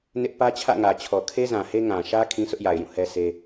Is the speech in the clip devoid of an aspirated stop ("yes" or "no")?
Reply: no